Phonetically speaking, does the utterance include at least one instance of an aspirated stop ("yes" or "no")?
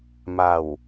no